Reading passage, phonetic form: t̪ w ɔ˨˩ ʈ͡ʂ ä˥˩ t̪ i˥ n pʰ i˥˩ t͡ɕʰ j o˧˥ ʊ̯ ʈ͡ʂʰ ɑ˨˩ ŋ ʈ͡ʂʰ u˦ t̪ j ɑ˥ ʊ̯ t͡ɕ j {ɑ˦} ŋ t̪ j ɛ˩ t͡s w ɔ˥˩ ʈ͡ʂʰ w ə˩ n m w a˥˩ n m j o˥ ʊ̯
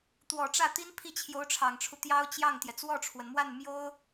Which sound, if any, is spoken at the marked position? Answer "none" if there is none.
ɑ˥˩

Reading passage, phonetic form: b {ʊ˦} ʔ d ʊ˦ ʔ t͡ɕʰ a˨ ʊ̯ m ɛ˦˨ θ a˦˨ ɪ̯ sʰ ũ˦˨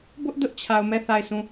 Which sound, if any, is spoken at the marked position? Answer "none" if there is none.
ʊ˦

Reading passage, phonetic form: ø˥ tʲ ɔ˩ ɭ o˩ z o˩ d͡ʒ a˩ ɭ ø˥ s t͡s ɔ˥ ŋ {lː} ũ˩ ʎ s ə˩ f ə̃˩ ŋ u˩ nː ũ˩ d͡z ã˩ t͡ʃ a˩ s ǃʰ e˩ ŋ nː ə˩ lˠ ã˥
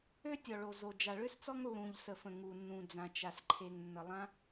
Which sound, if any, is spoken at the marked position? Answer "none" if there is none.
lː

